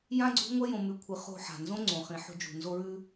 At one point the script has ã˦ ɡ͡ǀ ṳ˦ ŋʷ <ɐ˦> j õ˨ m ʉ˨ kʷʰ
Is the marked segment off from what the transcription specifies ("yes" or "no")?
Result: no